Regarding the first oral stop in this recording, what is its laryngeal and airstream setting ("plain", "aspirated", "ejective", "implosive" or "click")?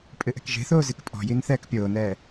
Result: ejective